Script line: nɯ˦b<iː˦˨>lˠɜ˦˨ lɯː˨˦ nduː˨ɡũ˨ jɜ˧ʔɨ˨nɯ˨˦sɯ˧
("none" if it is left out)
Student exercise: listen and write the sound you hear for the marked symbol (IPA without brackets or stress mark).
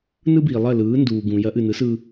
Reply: iː˨